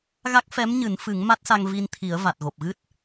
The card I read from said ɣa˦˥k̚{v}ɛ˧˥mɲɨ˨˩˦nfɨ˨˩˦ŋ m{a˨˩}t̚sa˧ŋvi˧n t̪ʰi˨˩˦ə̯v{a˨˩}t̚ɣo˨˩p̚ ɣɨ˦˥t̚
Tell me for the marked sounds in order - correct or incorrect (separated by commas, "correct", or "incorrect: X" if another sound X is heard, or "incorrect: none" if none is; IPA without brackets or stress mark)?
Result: incorrect: f, incorrect: a˦˥, correct